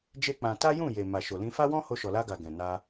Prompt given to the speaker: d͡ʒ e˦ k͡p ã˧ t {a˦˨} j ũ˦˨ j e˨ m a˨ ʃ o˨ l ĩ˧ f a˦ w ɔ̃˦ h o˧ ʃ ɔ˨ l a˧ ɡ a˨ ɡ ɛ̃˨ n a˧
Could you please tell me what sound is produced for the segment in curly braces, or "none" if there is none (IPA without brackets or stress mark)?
a˦